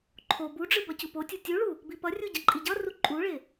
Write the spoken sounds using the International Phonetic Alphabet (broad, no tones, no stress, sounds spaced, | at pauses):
ǃʰ o b u ɖ͡ʐ ɯ b ʌ c u p o tʲ u tʲ u ɭ u | b i p ʌ rʲ u ɟ ʌ ǃʼ i ɟ ʌ r u ǃʼ u ɭ e